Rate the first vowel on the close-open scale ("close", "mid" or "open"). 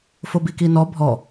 mid